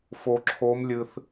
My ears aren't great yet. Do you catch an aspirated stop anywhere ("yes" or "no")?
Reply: yes